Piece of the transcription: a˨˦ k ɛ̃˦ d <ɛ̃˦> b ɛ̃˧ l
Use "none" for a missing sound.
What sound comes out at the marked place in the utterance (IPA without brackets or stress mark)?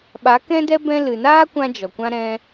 ɛ˦